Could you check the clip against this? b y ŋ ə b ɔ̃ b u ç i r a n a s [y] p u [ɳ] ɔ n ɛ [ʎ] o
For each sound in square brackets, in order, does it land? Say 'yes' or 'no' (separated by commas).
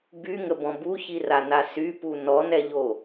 yes, no, yes